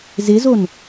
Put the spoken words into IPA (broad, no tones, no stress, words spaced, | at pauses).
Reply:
zɪzon